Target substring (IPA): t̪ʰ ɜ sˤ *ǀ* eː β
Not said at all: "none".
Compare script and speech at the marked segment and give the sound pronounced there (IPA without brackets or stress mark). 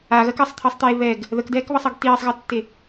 t̪